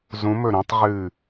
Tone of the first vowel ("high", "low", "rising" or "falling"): rising